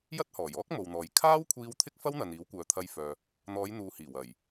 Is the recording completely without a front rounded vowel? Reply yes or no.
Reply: no